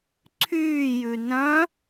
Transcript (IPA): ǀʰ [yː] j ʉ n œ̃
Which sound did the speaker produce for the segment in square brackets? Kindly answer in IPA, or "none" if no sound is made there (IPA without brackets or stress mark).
yː